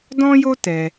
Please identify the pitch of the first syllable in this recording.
high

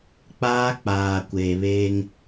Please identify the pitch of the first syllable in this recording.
high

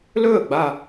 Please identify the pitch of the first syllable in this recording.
falling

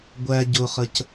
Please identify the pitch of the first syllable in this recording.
low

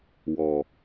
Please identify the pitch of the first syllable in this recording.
low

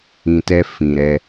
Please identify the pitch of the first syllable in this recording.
low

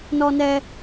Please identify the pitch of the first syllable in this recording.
high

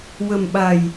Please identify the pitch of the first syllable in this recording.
low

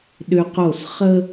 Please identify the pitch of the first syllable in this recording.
high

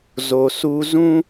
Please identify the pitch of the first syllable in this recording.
low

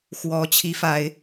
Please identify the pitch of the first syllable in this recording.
rising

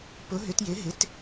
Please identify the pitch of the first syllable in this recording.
rising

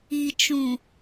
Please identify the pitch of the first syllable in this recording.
low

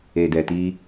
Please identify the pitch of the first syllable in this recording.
low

